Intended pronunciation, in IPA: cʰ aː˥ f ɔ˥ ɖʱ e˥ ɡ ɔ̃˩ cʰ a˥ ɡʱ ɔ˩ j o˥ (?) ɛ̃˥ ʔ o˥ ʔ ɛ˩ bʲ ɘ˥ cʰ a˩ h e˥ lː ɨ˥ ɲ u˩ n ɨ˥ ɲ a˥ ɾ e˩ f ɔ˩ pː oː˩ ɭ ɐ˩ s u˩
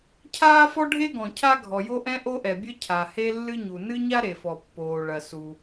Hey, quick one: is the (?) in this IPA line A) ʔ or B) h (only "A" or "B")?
A